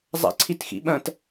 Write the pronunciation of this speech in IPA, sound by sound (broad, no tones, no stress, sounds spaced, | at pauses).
zˤ a̰ ǀʰ i t x ḭ ɓ ɐ̃ t